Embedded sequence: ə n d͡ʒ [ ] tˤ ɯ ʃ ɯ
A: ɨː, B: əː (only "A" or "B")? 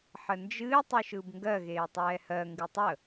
A